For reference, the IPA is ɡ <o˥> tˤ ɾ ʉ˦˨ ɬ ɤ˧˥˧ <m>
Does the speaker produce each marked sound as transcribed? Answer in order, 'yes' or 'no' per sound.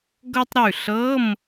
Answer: no, yes

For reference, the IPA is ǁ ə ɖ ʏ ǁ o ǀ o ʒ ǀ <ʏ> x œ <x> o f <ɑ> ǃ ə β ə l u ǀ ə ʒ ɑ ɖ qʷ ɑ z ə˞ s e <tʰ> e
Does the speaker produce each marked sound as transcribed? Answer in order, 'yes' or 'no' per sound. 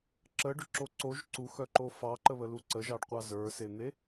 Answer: no, no, yes, no

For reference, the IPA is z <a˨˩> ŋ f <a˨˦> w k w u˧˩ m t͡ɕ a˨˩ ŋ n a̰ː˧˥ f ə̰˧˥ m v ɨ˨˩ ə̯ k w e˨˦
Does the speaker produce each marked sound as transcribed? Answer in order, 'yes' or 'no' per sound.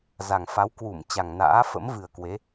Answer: yes, yes

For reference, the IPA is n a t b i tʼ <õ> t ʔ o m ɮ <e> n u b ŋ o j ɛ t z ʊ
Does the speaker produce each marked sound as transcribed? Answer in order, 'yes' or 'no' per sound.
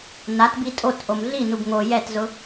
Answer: no, no

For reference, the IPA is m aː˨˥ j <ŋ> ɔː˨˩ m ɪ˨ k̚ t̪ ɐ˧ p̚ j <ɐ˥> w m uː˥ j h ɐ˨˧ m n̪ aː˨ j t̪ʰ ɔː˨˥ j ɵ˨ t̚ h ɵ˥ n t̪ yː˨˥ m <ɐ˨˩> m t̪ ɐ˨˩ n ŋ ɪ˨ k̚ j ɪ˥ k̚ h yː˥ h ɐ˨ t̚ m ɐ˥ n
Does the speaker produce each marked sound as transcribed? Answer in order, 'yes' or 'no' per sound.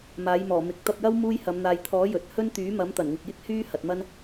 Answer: no, yes, no

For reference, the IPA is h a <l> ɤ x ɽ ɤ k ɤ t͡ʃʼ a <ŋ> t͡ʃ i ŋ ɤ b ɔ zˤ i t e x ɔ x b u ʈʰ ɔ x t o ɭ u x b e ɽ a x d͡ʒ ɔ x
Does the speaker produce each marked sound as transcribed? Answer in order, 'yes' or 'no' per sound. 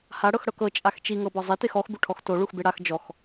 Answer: no, no

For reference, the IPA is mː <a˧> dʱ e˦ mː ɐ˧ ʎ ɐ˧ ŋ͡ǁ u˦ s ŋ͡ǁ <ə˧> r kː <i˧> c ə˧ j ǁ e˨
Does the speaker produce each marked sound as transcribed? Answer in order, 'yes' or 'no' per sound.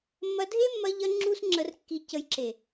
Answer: no, yes, yes

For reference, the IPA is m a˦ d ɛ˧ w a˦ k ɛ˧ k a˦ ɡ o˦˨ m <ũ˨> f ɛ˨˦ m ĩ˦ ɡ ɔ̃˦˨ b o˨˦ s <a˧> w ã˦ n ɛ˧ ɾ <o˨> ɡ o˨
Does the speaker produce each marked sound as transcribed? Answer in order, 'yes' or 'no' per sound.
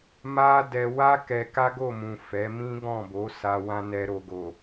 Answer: yes, yes, yes

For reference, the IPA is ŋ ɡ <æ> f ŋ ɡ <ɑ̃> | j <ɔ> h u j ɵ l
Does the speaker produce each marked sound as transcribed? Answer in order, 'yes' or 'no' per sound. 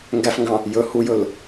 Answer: yes, yes, no

